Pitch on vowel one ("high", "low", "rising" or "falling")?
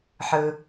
low